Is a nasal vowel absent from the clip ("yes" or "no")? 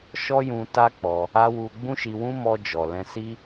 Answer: no